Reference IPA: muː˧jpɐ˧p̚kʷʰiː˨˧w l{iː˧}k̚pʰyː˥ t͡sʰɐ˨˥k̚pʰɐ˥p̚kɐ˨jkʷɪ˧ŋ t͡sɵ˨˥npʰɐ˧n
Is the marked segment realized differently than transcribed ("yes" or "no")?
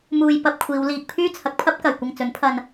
no